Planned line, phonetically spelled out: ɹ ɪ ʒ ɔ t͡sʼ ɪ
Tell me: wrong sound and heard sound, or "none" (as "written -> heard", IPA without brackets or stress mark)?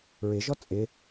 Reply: none